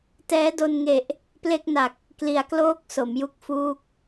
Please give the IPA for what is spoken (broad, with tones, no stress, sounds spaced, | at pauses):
t ɛː˦˥ d o˧ n ŋ e˨˩ ʔ | p l e˥˩ k̚ n a˨˩ k̚ | k l i˩˦ a̯ k l oː˦˥ k̚ s o˩˦ m j u˦˥ k̚ f uː˦˥ k̚